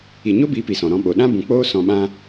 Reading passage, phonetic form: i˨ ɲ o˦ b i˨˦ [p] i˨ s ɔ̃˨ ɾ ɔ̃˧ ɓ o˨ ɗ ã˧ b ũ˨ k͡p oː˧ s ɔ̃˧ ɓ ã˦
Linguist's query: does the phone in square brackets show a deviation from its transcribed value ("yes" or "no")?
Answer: no